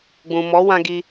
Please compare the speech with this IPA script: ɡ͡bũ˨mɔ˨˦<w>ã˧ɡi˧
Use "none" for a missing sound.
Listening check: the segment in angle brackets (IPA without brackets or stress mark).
w